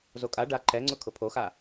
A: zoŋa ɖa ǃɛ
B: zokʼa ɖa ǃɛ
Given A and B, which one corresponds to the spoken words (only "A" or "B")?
B